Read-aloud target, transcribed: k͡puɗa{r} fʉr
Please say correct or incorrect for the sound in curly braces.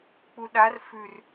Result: correct